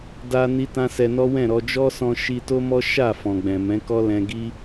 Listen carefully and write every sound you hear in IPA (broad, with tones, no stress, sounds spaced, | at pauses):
d a˧ n i˧ t ã˧ s ɛ˧ n ɔ˦ w ɛ̃˦˨ ɾ ɔ˧ d͡ʒ ɔ˦ s ɔ̃˧ ʃ i˧ t o˦ m ɔ˦ ʃ a˦˨ f ɔ̃˨ ɡ͡b ɛ̃˨ m ɛ̃˨˦ k ɔ˦ l ɛ̃˧ ɡ i˦